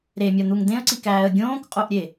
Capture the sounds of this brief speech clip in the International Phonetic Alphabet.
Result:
ɾ e mʲ ɒ n̪ u ŋ d̪ ẽ ə̯ ǀ i k æː ə̯ ɡʲ õː k qʼ o ʔ ɾʲ e

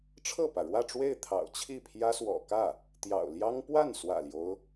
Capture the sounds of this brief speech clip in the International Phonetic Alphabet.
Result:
ʈ͡ʂʰ ɤ˥˩ p ä˩ ɻ w ä˥˧ ʈ͡ʂ w e˥˩ ɪ̯ t̪ʰ ɑ̰˨˩ ʊ̯ t͡ɕʰ i˥˩ pʰ j ä˥ s w ɔ̰˨˩ k ä˥˩ | t̪ j ɑ̰˨˩ ʊ̯ l j ɑ˥ ŋ p w a˥˩ n s w ä̰˨˩ l j o˦ ʊ̯

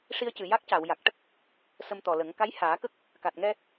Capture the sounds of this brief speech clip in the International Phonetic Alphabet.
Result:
ʂ i˧ ə̯ c ɨ˨˩ j a˦˥ k̚ c a˨˩˨ w j a˨˩ k̚ ʈ ə˦˥ k̚ | s ə˧ m t̪ ɔ˨˩ l ə˨˩˦ ŋ k a˧˥ j h aː˨˩˦ k ə˦˥ k̚ | k a˨˩ t̚ ŋ ɛ˧

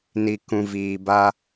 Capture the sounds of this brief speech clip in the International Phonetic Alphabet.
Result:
n i˨ k ũ˨ v iː˨ b a˦

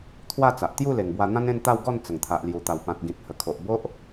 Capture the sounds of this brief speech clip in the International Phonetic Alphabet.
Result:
t̪ʰ w a˥˧ t͡s a˨ ʔ t̪ j u˥˧ l e˨˩ ŋ b w a˧ n̪ ã˦ n ẽ˥˧ n t̪ a˥˧ w ɡ ɔ˥˧ n t͡s ə˨˩ ŋ t̪ʰ a˨ ʔ l j u˨˩ t̪ a˨˩ w p ã˨ t̚ ɡ ĩ˨ t̚ h ə˨˩ kʰ o˨ ʔ b o˦ ʔ

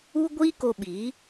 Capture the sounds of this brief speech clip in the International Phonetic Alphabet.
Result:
u˦ ɡʷ iː˦ k o˧ ɓ iː˨˦

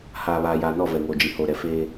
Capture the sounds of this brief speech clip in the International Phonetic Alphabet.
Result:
h aː˨ β aː˨ j aː˨ n ɔ˦˨ v ɛ˨ ŋ oː˨ d͡ʒ i˨ h o˨ ɾ ɛ˨ f eː˦

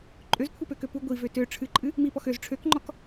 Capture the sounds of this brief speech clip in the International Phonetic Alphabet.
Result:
ǃʼ ø z kʷʰ ɨ p ø k ø p u ɡʷ i v ø t ø ʈ͡ʂʰ ɨ ǃʼ ɨ | m i p ɔ x ø z ʈ͡ʂʰ ø k ŋ͡ǃ ɔ k

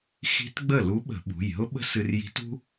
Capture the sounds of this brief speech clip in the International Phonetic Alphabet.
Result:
x i̤˧˥ t ɡ͡b ə˥˩ l u˧˥ ɓ ə̤˧˩˧ ɓ ṳ˩˧˩ j ɦ ʊ˥ ɓ ə̤˥ s ɨ˧ r j i̤˧˥ t ṳ˥

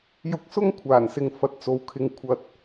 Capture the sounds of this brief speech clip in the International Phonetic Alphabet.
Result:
j ʊ˧ k̚ s ʊ˥ ŋ kʷʰ aː˨˩ n s ɪ˨ ŋ f ɐ˨˥ t̚ t͡s o˨˧ w kʰ ɪ˧ ŋ kʷʰ ɐ˧ t̚

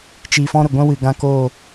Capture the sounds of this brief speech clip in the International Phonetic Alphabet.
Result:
t͡ʃ i˨ f ɔ̃˦ ɾ ə˨ ɡʷ ɛ̃˦ w ɨ˨ ɡ ã˦ k oː˦˨

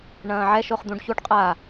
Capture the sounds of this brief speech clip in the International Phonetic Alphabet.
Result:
ɳ ɐ̃ː ʕ ɛ ʃ o χ d̪ ũ ɖ ç u ɖ qʼ a

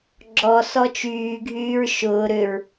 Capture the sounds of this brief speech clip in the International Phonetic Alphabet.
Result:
ɡ͡ǁ ɔ s ɔ t͡ʃ yː ɡʱ yː ɹ ʃ ʊː ɾ ʏ ɹ

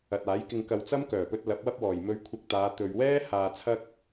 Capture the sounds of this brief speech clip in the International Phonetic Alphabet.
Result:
ɐ˨ t̚ aː˨˥ j k ɪ˧ ŋ k ɐ˧ w t͡s ɐ˥ m k œː˨˩ p ɵ˧ t̚ l ɐ˨˥ p̚ w ɐ˥ p̚ w ɔː˨˩ j m ɵ˧ ɥ kʷʰ ɐ˧ k̚ t̪ aː˨˧ t̪ ɵ˨ ɥ w ɛː˥ h aː˨ t͡sʰ ɐ˥ k̚

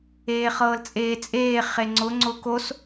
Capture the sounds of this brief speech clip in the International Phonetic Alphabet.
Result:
eː χ ɤː l t͡sʼ eː t͡sʼ eː χ e ŋ͡ǀ ʊ ŋ͡ǀ ʊː k o s

